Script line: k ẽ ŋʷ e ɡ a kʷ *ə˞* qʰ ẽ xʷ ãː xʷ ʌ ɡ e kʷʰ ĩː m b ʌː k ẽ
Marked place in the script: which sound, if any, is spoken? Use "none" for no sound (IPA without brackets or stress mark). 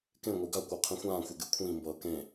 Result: ə˞